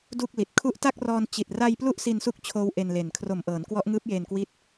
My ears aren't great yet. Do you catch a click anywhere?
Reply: no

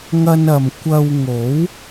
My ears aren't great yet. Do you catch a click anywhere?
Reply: no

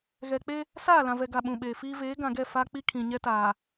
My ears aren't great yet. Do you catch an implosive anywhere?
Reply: yes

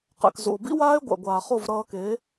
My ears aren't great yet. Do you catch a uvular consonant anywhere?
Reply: yes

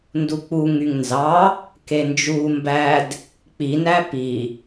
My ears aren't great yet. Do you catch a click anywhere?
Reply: no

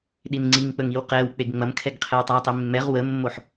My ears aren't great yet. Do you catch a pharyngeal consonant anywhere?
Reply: yes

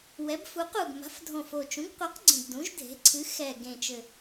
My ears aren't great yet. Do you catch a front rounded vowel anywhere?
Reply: no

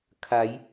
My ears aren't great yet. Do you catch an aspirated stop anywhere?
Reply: yes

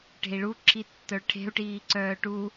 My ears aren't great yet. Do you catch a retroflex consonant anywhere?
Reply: yes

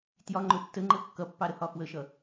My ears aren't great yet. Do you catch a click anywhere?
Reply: yes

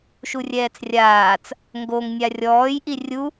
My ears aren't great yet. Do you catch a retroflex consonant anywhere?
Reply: no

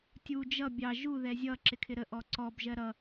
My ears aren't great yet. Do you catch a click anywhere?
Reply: yes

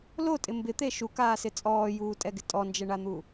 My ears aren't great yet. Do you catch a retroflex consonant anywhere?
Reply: yes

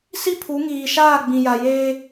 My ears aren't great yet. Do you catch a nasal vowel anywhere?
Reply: yes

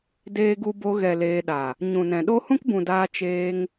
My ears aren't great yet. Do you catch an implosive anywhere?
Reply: yes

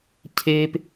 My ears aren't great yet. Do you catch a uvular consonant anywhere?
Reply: no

